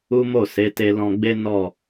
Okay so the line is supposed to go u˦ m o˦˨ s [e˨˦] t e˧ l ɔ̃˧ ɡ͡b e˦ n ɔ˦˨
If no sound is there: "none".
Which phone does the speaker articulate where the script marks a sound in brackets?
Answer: e˨˦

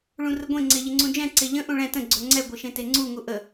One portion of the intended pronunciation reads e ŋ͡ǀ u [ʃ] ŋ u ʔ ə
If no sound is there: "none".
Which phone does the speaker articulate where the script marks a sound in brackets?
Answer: none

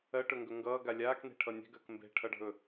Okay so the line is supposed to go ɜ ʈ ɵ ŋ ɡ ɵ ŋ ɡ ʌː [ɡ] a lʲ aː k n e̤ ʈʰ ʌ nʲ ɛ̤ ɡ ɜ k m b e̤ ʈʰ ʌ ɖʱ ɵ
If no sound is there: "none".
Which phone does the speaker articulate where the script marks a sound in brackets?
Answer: ɡ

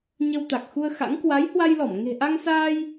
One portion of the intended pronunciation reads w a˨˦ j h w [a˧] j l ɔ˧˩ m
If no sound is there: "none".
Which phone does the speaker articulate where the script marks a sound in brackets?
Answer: a˧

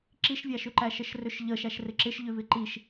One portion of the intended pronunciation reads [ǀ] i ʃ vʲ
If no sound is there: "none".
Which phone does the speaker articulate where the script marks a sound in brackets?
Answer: ǁ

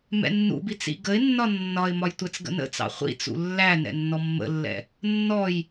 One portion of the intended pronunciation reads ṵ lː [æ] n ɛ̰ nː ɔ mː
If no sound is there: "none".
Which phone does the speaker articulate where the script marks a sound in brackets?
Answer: æ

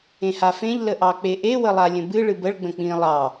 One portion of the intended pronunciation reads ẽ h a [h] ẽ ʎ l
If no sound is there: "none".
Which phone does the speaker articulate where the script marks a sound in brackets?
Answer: f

